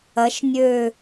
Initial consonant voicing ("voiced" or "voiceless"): voiceless